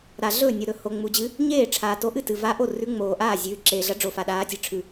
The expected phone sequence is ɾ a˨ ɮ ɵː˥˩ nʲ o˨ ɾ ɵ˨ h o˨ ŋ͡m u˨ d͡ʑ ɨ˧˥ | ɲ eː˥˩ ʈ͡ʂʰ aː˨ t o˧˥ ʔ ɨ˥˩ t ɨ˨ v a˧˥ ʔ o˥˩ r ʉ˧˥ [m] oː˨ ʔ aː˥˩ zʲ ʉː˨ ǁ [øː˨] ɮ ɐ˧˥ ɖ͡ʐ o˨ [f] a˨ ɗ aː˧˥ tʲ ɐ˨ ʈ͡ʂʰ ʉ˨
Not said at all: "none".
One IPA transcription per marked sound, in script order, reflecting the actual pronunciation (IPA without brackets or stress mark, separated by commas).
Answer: ŋ͡m, eː˨, f